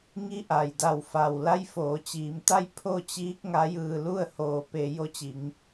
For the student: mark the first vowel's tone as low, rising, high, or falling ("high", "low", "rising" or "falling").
rising